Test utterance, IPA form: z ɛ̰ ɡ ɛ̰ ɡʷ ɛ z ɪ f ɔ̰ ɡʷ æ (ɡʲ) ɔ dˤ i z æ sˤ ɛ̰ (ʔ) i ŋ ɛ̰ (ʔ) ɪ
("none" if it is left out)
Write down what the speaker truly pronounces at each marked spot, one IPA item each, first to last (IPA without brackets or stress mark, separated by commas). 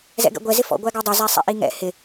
ɡ, ʔ, h